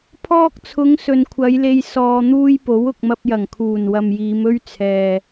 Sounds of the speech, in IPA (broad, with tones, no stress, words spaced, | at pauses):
pʰɔː˧k̚t͡sʰʊ˨˧ŋ sɵ˨nkʷʰɐ˨˧jle˧j sɔː˧n̪uː˥j po˨˥wʊ˨k̚mɐ˧p̚jɐ˨˩ŋ kʰuː˨˩nwɐ˨mjiː˨˧mɵ˥ɥ t͡sʰɛː˨